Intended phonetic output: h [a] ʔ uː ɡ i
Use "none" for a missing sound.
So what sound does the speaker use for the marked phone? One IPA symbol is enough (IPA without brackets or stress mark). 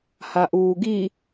a